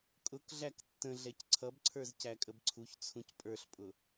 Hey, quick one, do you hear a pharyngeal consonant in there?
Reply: no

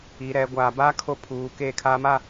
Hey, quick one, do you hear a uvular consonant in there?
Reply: no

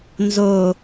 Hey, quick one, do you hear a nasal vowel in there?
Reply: no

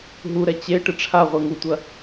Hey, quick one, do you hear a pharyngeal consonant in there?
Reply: no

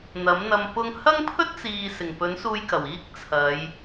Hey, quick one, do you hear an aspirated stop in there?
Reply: yes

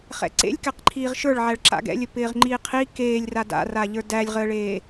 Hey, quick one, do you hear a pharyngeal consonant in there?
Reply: yes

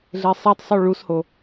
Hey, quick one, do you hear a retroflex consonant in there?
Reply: yes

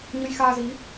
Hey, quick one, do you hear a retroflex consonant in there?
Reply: no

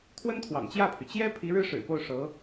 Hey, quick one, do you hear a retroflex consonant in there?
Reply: yes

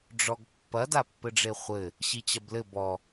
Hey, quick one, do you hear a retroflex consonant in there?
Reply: yes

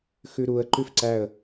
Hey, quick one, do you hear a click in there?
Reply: yes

